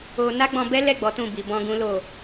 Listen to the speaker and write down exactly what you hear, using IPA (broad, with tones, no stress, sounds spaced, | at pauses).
o˧ n a˦ ɡ͡b ɔ̃˧ b ɛ˦ l ɛ˦˨ ɡ͡b ɔ˨˦ t ũ˦˨ b i˨ b ɔ̃˧ ɡ ũ˦ l o˦˨